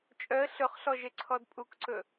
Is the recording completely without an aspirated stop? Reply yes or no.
no